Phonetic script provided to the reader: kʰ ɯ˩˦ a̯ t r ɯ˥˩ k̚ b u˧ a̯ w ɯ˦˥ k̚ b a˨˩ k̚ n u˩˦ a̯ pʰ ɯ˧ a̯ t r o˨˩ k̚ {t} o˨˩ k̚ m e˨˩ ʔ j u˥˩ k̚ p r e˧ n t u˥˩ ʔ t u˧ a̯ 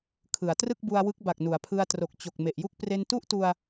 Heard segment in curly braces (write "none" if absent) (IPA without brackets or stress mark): t͡ɕ